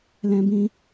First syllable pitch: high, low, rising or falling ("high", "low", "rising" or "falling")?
high